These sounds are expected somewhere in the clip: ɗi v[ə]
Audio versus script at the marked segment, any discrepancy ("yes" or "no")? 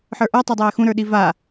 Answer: yes